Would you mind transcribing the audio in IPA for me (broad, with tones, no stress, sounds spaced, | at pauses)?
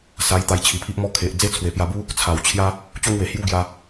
s a˧ j t̪ a˧ j t͡ɕʰ i˨˩ pʰ i˦ ʔ m ɔ˦ kʰ e˨ ʔ d͡z e˥˧ t͡sʰ w e˨˩ p j a˧ b u˦ | t͡sʰ a˨˩ w t͡ɕʰ j a˦ | t͡ɕ o˦ ŋ w e˨˩ h j u˦ ɡ j a˧